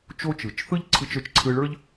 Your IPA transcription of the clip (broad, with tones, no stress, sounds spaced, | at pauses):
t͡ʃ o˦ t͡ʃ ɯ˨ t͡ʃ θ ɯ˦ ʎ ǀʰ ɯ˧ t͡ʃ ə˞˨ t͡ʃ ǀʰ ɯ˧ ɭ ə˞˦ ʎ